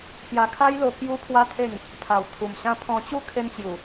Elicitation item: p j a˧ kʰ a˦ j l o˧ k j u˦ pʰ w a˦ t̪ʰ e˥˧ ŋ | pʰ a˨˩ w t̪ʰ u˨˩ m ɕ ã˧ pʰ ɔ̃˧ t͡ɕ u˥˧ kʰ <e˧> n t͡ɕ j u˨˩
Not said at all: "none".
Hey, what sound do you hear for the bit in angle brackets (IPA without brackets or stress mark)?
e˧